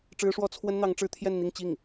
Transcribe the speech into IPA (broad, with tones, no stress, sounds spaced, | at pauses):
ʈ͡ʂ ɻ̩˥ ʂ w ɔ˥ t͡sʰ w ə˥ n n̪ ɑ˧˥ ŋ ʈ͡ʂ ɻ̩˥ t̪ʰ j ɛ˥˧ n n̪ i˥˧ ŋ t͡ɕ i˥˩ ŋ